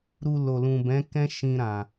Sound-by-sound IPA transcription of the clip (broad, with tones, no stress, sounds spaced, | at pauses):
ɾ u˧ l o˨ l ũ˨ b ɛ̃˨˦ k ɛ̃˦ ʃ ĩ˧ ɾ ã˨